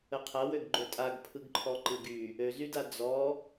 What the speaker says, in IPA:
ə qʰ ɐ w ø ɡ ɡ͡ǃ ø tʼ a ɡ pʰ ɯ ɡ ǃʰ ɔ ǃ ɯ ɡ y | ø z y d a d͡z ɔ

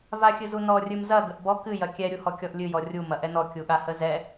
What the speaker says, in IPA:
v a xʲ ɨ z u n ɔ rʲ ɨ m z ɐ ɡ ə ʔ b ɔ k ɨ j ɐ kʲ ɛ ɾʲ u h ɔ kʲ ɔ ʔ lʲ ɨ j ɔ rʲ u m ɐ ʔ ɛ n ɔ kʲ u ɠ a h ə z ɛ

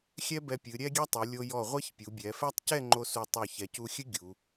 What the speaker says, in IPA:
xʲ ɛ˥ b ɛ˧ pʲ ɨ˩˧ ɾʲ ɛ˥ ɡʲ ɛ˥ tˤ u˩˧ lʲ o˧ j ɔ˧˩ ʁʷ ɛ˥ ç pʲ u˩˧ bʲ ɛ˩˧ f ɛ˥ tˤ c ɛ˥˧ ŋ͡ǃ o˧ s u˧˩ tˤ o˧˩ ç ɛ˩˧ c u˧ xʲ ɨ˥ ɡʲ u˩˧

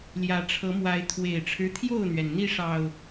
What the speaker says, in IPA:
l j ä˨˦ ʈ͡ʂʰ ɤ˨˦ m w a˨˦ ɪ̯ t̪ʰ w e˨˩ ɪ̯ ʈ͡ʂʰ ɻ̩˦ t̪ʰ j o˥˨ ʊ̯ n̪ ɥ ɛ˩ n n̪ i˥˨ ʂ ɑ˨˩ ʊ̯

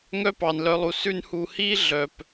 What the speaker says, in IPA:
ŋ œ˦ p ɑ˨ n l œ˧ lˠ u˨ s ʉ˧ n h u˨ h i˦ ɮ œ˨ p

